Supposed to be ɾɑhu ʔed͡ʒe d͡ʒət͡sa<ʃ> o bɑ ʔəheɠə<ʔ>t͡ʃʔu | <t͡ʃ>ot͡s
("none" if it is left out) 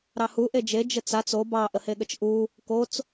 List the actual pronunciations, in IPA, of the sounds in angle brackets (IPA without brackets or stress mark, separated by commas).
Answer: t͡s, none, k